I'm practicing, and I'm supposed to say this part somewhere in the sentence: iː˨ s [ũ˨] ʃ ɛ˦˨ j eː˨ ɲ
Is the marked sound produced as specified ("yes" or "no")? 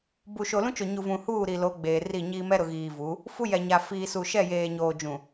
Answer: no